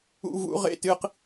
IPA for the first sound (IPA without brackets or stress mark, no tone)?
ṵ